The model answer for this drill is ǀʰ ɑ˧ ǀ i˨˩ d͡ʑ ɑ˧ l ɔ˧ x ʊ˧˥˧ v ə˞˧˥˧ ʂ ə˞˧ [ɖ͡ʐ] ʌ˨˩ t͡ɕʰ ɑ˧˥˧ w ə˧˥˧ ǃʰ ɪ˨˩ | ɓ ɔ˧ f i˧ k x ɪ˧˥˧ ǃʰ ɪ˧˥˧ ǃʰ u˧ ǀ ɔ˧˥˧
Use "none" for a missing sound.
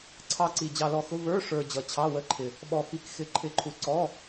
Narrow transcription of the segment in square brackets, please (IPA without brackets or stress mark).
d͡ʑ